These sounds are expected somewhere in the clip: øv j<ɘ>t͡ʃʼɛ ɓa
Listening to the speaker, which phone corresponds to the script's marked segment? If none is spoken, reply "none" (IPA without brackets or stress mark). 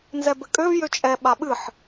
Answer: ø